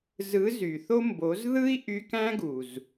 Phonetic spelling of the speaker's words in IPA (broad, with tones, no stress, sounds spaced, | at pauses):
z ɯ˨˦ z y˨ θ o˦ m b o˨˦ z ð ɯ˦ i̯ ʔ y˧ k æ̃˦ ɡ u˨ z